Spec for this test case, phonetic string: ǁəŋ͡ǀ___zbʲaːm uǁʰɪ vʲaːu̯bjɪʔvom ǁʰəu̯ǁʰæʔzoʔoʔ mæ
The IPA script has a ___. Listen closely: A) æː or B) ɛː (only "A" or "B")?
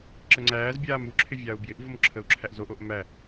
A